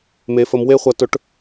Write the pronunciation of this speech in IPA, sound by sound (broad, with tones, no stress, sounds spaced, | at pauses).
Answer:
m e˧˥ f ə˧˥ m w e˥ χʷ ɐ˧˥ t ɵ˧˥ ʈ